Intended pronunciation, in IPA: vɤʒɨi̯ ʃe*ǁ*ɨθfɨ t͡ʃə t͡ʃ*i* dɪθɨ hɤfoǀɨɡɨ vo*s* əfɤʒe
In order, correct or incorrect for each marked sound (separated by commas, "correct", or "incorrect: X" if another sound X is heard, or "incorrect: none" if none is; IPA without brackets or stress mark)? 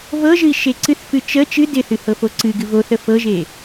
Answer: incorrect: ǀ, incorrect: ɨ, incorrect: θ